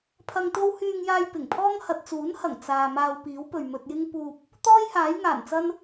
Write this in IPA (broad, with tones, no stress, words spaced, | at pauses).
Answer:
pʰɐ˧ŋt̪o˥w hyː˧ŋjaː˧j pɪ˨˩ŋpʰɔː˥ŋ hɐ˨t̚t͡suː˨˥nhɐ˨˩ŋ t͡saː˨ maː˧wpiː˨˥wpɵ˨ɥ mɵ˧t̚jɪ˥ŋ puː˧p̚ | t̪ɔː˥jhaː˨˥jŋaː˨˩nt͡sɐ˥n